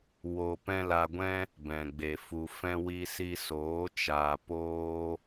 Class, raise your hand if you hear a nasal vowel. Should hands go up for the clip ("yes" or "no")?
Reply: yes